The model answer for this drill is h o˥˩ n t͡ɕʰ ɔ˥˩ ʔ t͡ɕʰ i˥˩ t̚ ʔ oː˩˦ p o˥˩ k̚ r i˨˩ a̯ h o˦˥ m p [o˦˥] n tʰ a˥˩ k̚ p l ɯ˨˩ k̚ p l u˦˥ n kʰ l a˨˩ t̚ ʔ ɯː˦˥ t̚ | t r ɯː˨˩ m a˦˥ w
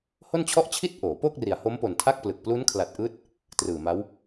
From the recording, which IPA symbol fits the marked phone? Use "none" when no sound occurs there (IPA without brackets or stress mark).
o˨˩